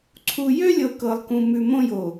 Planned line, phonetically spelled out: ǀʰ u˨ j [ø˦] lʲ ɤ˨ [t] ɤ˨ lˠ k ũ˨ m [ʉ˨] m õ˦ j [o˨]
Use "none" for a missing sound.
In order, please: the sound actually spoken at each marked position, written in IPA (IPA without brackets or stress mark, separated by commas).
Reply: ø˦, k, ʉ˨, o˨